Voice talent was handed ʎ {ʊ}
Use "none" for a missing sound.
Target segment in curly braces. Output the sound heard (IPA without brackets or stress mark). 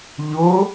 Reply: ʊ